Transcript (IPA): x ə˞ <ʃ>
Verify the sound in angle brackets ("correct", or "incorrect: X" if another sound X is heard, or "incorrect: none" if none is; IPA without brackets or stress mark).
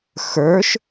correct